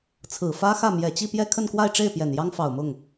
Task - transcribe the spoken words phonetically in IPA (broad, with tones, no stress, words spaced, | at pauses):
t͡sʰɹ̩˨˩fä˥xä˥˩ mjɛ˨˩t͡ɕi˥˧pjɛ˥˧ kʰə˥˧nkwa˥˧ɪ̯ʈ͡ʂe˥˩ɪ̯ pjɛ˨˩njɑ˥ŋfɑ˨˩ʊ̯mʊ˥˩ŋ